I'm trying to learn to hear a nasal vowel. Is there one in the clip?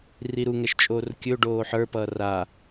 no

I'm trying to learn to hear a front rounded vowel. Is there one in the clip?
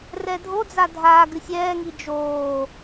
no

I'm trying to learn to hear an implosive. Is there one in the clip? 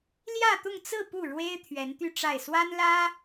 no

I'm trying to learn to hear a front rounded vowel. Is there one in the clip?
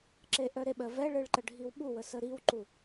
yes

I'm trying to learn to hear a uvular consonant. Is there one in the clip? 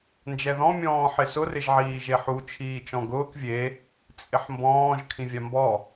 no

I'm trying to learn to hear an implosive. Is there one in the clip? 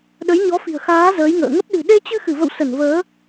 yes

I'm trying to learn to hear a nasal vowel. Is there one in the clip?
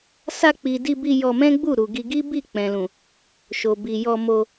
yes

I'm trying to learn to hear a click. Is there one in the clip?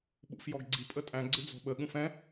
yes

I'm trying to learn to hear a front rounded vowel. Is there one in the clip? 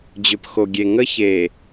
yes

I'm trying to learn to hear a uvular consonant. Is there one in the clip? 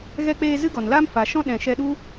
no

